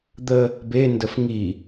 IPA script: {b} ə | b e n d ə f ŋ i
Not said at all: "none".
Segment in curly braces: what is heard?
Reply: d̪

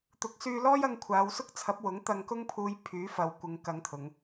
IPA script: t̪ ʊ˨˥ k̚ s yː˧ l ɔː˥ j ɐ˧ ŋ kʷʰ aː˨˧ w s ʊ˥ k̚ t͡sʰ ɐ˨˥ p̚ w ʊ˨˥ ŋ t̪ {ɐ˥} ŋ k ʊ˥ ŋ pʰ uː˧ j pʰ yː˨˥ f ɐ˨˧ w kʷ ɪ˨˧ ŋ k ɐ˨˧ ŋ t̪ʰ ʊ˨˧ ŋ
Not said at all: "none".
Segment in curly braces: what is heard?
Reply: ɐ˧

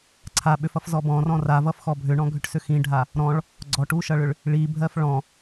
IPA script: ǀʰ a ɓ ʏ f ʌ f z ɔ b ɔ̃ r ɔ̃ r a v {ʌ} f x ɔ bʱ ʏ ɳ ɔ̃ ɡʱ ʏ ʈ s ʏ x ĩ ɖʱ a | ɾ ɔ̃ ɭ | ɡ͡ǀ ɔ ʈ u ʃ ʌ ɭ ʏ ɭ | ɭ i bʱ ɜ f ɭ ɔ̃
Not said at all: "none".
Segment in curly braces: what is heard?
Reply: ʌ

